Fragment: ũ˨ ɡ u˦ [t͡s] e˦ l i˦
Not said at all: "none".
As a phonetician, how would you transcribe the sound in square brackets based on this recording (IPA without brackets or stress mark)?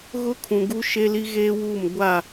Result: ʃ